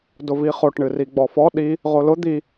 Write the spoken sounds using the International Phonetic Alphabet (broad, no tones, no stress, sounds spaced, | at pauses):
d ʊ v i χ o ʈ ɳ ɨ r i ɡ͡b ɔ f ɔ ɗ i | ʁ o l ʊ d̪ i